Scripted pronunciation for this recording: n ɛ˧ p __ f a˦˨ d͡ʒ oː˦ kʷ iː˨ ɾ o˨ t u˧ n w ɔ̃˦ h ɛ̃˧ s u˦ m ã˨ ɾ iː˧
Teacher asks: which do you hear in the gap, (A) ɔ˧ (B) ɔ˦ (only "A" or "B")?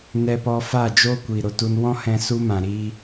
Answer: A